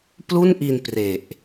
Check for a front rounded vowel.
absent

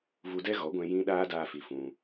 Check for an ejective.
absent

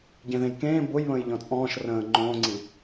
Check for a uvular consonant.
absent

